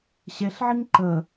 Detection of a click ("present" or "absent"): present